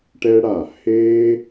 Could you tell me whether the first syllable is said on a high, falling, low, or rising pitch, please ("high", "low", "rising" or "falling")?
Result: high